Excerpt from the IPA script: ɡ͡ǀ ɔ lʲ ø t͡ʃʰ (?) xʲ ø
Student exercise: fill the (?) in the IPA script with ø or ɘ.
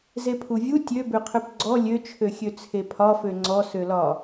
ø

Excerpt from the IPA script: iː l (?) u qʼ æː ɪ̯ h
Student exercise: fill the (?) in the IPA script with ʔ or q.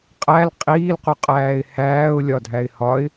q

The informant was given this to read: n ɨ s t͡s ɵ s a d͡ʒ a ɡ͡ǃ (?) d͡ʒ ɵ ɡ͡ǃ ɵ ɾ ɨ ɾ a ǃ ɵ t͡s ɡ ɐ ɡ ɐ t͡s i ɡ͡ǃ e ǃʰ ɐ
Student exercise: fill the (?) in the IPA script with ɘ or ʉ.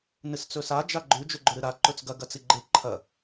ʉ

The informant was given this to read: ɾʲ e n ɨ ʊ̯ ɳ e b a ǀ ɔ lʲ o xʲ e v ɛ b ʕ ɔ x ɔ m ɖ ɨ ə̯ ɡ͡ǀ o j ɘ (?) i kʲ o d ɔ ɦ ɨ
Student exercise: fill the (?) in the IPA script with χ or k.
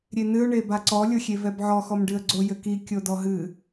k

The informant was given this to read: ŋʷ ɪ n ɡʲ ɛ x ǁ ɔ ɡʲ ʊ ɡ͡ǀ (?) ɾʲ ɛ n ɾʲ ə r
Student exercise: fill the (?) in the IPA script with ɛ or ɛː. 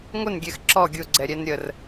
ɛ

